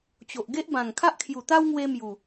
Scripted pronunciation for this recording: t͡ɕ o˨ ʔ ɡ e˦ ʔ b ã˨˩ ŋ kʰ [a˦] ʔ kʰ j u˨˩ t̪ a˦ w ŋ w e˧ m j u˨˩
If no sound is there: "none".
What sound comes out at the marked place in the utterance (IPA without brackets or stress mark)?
a˦